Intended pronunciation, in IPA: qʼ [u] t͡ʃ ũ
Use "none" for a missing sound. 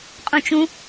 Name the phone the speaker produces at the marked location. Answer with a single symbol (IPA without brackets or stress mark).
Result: ũ